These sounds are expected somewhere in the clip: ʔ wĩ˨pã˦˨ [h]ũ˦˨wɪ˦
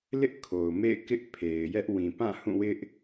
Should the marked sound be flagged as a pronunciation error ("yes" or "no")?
no